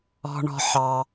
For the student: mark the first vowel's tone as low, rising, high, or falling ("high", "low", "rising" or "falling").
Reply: low